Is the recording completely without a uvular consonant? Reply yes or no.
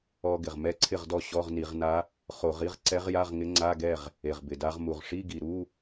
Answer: no